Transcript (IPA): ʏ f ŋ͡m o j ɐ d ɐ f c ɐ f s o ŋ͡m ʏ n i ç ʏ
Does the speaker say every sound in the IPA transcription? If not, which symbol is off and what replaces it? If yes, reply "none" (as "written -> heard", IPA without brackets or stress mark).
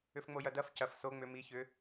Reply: n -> m